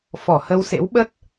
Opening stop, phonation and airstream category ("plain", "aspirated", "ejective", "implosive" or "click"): implosive